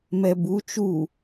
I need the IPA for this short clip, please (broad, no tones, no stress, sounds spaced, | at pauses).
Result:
m ɛ b u t͡ʃ u